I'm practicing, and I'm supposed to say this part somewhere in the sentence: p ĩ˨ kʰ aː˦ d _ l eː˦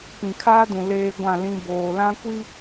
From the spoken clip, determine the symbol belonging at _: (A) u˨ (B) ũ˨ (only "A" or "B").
B